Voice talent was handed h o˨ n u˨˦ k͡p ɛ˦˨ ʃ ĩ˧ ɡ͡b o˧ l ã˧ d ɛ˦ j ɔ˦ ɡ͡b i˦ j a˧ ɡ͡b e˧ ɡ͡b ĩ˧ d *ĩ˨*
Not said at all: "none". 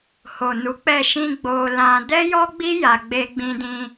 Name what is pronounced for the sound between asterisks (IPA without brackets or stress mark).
ĩ˧